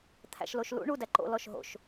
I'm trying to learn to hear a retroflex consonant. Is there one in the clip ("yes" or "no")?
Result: yes